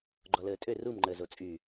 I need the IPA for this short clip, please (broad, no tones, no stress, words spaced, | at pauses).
ɡ͡ǃɔləːtʼø rumŋ͡ǃəːzo t͡sʼy